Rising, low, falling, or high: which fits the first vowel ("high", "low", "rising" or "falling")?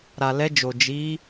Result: low